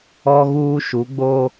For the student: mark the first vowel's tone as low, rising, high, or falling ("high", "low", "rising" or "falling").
high